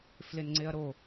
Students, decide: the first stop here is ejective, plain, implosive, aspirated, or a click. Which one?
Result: click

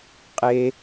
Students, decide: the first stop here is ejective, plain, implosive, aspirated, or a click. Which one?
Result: ejective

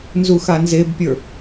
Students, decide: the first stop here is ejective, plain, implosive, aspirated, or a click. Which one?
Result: plain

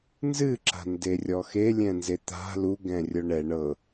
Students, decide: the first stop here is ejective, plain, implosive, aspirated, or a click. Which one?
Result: click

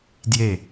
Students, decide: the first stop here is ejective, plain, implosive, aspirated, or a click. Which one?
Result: plain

